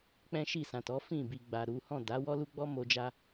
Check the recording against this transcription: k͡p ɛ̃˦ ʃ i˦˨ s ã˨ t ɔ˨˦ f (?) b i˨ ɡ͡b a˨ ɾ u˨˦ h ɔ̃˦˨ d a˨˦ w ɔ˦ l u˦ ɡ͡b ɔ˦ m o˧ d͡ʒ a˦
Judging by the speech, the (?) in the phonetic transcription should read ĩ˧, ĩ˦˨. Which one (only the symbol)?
ĩ˦˨